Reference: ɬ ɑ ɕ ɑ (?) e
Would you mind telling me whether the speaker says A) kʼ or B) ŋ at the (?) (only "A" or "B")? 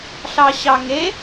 B